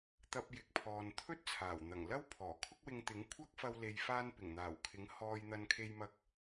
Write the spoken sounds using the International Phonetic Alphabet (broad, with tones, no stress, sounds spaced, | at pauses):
t̪ ɐ˧ p̚ j ɪ˨ k̚ pʰ ɔː˨ n t̪ʰ ɵ˥ t̚ t͡sʰ aː˨˩ w n̪ ɐ˨˩ ŋ l ɐ˥ w pʰ ɔː˨˩ kʰ ʊ˥ k̚ w ɪ˧ ŋ t̪ ɪ˨˥ ŋ kʷʰ ɐ˥ k̚ f ɐ˧ w l e˨ j f aː˧ n p ɪ˨˩ ŋ n̪ aː˨˩ w kʰ ɪ˨˥ ŋ h ɔː˧ j n̪ ɐ˧ n kʰ e˧ j m ɐ˧ k̚